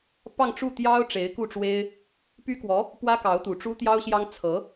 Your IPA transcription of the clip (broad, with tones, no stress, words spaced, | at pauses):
pɑ˥˧ŋʈ͡ʂu˥˩t̪jɑ˥ʊ̯ ʈ͡ʂe˧˥ɪ̯ku˥˩ʈ͡ʂwe˥ɪ̯ | py˥kwɔ˧˥ | pwä˥kɑ˧˥ʊ̯t̪u˨˩ ʈ͡ʂu˥t̪jɑ˥ʊ̯ɕjɑ˥ŋ t͡sʰɤ˧˥